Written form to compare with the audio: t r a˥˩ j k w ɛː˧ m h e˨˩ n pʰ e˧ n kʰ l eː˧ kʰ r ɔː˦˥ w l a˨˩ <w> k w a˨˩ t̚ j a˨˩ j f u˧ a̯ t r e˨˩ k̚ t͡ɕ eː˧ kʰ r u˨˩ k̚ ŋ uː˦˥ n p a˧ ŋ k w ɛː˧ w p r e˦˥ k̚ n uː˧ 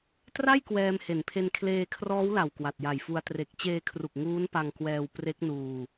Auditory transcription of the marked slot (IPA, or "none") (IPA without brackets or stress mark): w